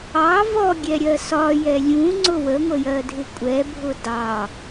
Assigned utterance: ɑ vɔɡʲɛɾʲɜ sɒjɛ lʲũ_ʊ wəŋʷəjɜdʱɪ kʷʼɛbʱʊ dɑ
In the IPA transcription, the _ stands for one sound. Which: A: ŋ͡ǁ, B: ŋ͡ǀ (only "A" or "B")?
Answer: B